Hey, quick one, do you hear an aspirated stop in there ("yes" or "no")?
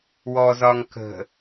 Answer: no